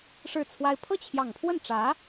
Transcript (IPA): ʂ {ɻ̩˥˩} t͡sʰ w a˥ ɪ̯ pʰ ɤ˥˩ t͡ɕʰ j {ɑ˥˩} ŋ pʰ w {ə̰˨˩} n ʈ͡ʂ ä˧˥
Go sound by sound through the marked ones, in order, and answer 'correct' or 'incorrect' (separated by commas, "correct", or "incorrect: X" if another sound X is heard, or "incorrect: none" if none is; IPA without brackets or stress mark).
correct, incorrect: ɑ˨˩, incorrect: ə˥˩